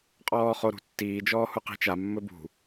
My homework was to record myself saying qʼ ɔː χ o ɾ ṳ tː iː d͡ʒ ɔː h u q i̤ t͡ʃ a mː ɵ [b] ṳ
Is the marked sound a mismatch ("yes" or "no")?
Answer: no